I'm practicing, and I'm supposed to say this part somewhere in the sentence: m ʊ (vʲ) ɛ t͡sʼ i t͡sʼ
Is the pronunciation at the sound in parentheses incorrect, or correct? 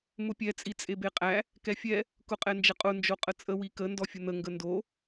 incorrect